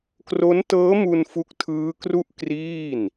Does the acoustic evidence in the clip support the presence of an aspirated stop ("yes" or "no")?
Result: yes